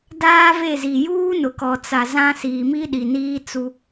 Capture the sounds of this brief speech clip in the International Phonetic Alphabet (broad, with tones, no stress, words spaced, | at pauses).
daː˦ve˦˨zi˨ juː˦nʊ˨kɔ˨ t͡sa˨zã˦ siː˨mi˦ɗi˨niː˦ t͡su˦